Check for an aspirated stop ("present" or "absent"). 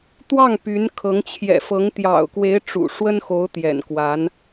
present